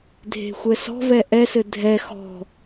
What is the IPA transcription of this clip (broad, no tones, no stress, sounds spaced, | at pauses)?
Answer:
dʱ e̤ xʷ ɛ s ɔ̤ v ɛ ʔ ɛ s ɘ dʱ ɛ x ɔ̤